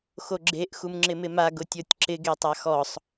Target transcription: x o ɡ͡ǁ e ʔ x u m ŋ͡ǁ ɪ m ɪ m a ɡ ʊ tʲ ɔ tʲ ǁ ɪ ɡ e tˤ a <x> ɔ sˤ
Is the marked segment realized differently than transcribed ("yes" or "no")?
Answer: no